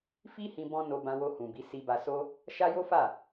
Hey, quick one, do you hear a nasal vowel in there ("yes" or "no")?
yes